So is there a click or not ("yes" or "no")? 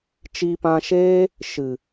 no